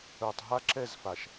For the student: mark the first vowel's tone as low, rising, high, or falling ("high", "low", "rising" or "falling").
low